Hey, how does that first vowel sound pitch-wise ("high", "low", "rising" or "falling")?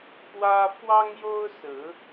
high